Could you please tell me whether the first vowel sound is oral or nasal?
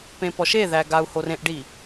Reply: nasal